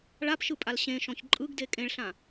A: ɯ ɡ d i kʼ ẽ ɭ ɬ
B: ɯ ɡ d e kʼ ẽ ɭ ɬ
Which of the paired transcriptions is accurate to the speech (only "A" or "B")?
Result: B